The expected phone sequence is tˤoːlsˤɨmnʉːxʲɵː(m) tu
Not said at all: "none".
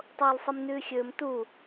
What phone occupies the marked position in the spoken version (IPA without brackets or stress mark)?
m